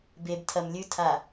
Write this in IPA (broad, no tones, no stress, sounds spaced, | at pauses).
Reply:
b e b tʰ ɐ m lʲ ʉ tʰ a